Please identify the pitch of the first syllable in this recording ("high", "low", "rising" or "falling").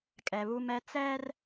low